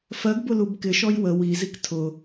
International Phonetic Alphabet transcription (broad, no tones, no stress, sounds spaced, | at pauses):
f ɜ ɡ b ʊ l u b k ɪ ʃ ɔ j w ə w i z i k tʰ ʊ